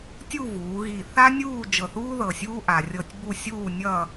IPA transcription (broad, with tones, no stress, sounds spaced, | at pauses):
tʲ u˥˧ v uː˩˧ ɣ i˧˩ θ a˥ nʲ uː˥˧ d͡ʒ ɤ˧˩ θ uː˥ ð ɤ˧˩ sʲ uː˥ ʔ a˧ rʲ ɤ˥˧ tʲ b u˥˧ sʲ uː˥˧ nʲ ʌ˥˧